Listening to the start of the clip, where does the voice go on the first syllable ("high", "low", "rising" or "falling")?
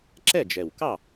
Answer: falling